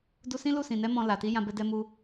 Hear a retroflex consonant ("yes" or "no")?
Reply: no